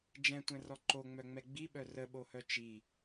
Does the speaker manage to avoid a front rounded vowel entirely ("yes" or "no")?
no